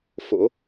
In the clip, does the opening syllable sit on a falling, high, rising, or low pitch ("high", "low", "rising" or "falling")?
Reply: rising